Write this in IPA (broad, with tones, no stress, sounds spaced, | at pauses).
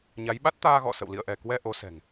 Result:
ɲ a˨˦ j ɓ a˦˥ t̚ t̪ aː˧ ɣ ɔ̰˧˨ s ə̰˧˨ w l ḭ˧˨ ə̯ ʔ ɛ˧˩ k w ɛ˧ ʔ o˨˦ s ɛ̤˨˩ ŋ